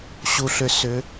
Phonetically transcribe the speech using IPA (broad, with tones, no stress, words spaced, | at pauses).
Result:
ɕu˨ɬʏ˨ sʏ˨˦